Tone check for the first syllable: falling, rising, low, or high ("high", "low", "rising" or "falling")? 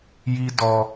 high